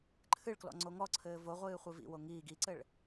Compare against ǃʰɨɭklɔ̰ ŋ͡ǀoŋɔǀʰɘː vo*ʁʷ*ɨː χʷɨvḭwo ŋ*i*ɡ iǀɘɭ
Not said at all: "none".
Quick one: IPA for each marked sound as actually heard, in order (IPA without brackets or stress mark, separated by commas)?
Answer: ʁʷ, iː